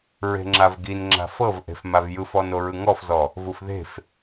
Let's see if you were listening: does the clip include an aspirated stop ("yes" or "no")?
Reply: no